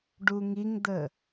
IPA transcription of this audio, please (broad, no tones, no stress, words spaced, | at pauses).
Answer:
ɖuŋiŋd̪ə